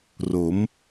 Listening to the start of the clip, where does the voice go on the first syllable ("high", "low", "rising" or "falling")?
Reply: rising